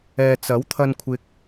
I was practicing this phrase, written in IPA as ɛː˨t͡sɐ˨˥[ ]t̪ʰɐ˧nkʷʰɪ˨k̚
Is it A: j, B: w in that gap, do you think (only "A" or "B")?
B